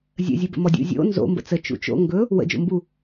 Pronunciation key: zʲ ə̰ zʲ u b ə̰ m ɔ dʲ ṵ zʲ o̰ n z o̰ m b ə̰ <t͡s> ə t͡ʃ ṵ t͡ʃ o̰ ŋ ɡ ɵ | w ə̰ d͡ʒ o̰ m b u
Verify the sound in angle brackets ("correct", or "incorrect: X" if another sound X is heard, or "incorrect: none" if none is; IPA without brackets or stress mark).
correct